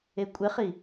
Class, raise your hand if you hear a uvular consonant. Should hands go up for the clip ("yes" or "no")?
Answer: yes